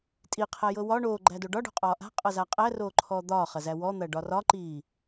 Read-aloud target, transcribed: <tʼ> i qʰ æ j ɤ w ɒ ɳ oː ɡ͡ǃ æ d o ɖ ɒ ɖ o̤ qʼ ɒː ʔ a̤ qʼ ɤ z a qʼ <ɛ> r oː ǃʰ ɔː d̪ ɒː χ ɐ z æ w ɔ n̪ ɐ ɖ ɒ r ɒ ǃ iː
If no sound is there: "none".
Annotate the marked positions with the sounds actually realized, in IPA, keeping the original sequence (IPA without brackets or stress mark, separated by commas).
tʼ, æ